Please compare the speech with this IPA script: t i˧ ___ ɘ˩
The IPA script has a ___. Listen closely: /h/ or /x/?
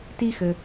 x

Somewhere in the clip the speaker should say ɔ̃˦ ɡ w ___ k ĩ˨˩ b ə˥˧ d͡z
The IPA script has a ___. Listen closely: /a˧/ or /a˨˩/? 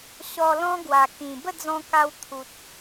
a˨˩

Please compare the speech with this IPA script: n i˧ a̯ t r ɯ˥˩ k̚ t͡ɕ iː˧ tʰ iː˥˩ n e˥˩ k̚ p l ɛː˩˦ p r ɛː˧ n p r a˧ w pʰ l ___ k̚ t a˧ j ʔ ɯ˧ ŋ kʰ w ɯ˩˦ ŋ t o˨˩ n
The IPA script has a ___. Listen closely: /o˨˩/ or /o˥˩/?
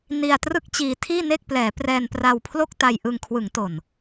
o˥˩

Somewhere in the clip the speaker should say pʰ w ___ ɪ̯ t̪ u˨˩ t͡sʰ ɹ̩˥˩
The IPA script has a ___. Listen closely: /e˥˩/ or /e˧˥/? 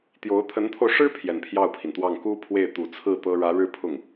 e˥˩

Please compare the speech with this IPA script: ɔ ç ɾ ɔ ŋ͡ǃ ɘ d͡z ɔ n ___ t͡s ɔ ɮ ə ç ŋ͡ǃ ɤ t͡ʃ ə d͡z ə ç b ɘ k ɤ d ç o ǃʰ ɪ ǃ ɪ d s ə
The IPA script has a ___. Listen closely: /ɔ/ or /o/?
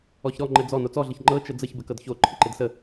o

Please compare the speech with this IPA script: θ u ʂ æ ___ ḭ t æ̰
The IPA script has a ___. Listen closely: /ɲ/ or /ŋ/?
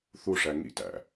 ŋ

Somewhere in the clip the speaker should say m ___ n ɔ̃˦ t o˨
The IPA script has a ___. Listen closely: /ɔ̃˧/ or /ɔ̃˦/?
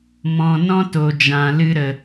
ɔ̃˧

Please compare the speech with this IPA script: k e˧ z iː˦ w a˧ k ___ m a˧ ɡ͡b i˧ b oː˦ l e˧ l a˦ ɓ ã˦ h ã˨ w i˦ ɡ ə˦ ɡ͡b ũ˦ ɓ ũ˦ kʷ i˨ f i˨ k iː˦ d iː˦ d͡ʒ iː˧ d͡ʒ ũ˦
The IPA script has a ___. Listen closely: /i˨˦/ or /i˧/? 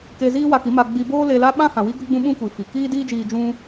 i˨˦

